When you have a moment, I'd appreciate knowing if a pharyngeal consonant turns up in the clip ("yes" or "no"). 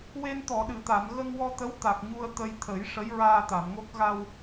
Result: no